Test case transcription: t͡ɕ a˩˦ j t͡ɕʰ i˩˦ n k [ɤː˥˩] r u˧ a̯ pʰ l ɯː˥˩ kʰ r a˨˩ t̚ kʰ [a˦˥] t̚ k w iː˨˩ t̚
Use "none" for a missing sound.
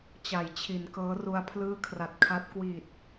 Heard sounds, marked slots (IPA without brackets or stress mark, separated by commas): ɤː˦˥, a˦˥